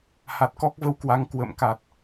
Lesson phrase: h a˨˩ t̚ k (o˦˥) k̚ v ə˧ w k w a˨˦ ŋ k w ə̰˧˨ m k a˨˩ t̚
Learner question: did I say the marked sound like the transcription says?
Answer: no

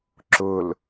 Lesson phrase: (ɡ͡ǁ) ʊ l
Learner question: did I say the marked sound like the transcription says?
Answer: no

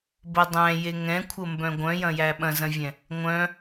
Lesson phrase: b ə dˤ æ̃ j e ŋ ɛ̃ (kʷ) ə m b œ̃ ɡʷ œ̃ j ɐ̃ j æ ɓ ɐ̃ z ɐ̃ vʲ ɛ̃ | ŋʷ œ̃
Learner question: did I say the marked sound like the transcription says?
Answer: no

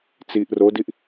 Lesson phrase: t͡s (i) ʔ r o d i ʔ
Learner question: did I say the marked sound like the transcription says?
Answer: yes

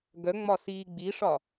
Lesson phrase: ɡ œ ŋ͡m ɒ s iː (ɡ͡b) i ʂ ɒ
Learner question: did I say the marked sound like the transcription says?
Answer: yes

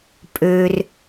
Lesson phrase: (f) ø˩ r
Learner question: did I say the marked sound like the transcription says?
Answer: no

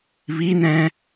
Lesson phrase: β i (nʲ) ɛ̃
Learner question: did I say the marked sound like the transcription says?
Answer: no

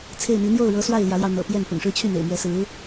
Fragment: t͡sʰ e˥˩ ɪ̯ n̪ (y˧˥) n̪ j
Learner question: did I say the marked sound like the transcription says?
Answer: no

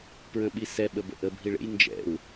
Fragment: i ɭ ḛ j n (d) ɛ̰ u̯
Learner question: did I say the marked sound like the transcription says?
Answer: no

